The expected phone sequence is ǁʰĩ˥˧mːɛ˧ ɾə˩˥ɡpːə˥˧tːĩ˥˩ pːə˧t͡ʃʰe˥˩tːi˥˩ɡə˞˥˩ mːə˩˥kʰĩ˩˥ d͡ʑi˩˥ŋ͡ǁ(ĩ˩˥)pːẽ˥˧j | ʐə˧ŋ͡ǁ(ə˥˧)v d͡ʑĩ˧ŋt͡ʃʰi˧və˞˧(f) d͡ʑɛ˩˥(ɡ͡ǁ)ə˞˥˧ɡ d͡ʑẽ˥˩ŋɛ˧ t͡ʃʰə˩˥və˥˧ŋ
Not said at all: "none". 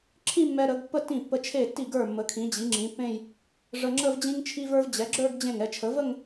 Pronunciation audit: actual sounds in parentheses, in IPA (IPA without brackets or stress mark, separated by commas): ĩ˩˥, ə˥˧, v, ɡ͡ǁ